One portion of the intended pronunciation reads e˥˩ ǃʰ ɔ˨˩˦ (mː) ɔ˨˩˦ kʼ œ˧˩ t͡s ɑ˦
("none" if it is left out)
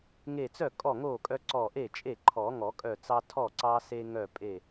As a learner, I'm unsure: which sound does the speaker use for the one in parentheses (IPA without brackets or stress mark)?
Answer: ŋ